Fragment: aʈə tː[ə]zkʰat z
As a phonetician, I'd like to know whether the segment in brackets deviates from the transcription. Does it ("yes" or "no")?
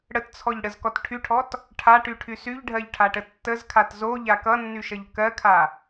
no